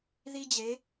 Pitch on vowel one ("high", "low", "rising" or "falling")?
high